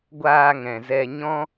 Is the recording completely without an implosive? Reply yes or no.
yes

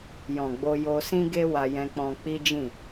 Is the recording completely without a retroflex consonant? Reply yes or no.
yes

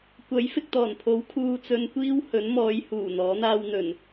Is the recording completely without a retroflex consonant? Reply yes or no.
yes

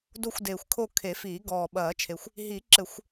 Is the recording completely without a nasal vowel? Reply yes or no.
yes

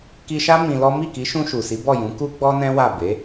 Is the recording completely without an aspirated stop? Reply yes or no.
yes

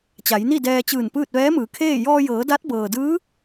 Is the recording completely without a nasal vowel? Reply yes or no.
yes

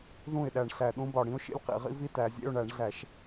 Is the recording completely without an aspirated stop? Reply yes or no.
yes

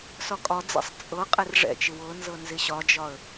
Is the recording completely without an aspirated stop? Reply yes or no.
yes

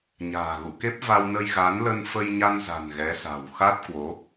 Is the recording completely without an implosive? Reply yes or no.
yes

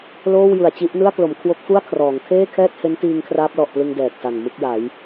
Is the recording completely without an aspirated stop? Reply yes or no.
no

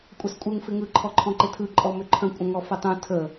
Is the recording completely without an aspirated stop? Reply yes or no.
no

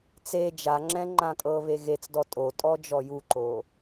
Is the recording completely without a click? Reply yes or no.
no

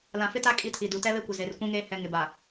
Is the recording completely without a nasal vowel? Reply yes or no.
no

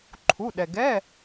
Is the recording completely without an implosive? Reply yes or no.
no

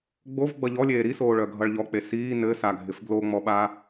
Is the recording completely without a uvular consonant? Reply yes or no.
yes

